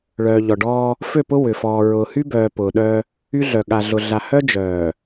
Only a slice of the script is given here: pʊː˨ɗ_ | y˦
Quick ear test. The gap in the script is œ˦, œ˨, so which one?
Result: œ˦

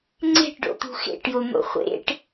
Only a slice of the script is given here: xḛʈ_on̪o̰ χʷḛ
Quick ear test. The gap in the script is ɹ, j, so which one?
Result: j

